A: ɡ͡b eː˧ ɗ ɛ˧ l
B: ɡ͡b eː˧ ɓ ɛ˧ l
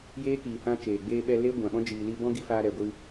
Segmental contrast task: B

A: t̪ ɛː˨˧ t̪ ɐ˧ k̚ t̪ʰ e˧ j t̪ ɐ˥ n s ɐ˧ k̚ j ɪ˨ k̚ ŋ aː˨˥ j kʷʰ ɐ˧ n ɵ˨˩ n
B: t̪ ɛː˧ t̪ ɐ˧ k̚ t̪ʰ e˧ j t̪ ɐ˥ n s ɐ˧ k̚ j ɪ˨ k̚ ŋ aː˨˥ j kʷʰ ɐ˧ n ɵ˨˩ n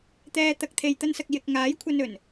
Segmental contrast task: B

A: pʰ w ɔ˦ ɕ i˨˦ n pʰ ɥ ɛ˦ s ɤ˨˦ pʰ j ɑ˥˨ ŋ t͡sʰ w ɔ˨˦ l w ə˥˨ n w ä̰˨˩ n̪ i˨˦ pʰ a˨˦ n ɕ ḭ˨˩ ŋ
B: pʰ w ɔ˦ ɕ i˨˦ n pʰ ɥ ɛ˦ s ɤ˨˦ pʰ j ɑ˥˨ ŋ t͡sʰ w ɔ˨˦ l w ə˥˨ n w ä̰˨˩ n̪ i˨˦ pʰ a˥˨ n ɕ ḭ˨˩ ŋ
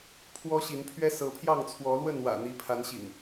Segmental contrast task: A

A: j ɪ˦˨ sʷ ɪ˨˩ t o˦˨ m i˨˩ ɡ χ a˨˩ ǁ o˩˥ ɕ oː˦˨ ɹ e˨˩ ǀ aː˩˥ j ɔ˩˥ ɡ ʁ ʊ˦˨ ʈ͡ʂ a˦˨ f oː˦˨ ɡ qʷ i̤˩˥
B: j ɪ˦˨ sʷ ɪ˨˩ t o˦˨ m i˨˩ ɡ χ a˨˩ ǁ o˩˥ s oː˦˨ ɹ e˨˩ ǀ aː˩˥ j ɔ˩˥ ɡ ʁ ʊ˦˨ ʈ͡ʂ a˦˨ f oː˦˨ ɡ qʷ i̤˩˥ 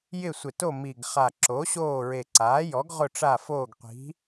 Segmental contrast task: A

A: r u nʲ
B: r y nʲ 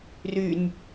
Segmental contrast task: B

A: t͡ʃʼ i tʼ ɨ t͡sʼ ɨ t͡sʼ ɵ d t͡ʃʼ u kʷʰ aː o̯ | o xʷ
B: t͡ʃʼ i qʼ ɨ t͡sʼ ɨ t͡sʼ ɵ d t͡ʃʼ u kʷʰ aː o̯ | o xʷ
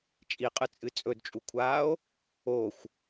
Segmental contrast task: B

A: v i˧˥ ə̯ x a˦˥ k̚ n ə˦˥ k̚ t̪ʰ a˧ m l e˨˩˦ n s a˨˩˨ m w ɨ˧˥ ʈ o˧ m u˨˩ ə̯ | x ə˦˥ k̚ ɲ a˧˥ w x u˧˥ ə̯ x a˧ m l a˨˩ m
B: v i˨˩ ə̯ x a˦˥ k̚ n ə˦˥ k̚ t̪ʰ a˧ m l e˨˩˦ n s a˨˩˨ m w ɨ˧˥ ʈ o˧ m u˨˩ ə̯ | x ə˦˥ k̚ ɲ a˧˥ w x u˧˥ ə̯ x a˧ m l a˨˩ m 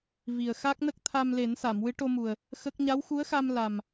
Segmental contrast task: B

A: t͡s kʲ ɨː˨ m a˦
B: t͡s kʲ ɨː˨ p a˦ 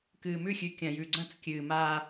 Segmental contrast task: A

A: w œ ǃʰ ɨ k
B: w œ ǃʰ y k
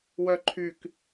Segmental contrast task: B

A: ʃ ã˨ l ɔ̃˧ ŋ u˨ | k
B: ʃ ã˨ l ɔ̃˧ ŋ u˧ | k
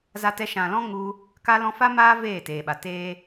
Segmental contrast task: B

